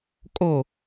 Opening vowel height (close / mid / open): mid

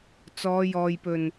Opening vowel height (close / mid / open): mid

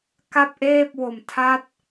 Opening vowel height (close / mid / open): open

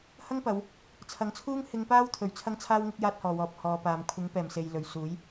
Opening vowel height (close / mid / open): open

